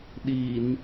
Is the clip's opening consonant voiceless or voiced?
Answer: voiced